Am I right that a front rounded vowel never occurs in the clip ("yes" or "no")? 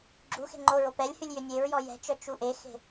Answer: no